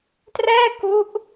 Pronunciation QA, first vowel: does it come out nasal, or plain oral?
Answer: oral